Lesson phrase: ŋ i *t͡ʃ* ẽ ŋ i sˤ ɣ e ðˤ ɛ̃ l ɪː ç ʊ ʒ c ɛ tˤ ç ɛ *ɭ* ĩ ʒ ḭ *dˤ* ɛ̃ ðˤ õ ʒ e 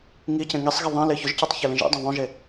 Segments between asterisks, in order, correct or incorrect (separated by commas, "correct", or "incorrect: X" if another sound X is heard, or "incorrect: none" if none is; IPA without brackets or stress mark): incorrect: c, incorrect: l, correct